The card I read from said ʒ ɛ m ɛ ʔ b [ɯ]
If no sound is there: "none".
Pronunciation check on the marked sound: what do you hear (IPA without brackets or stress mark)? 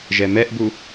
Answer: u